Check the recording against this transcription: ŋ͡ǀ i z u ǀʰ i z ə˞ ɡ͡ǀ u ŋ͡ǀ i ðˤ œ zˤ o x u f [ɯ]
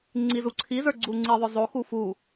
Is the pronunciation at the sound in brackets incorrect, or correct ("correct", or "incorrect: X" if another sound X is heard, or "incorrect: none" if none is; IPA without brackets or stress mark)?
incorrect: u